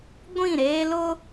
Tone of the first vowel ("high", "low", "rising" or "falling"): falling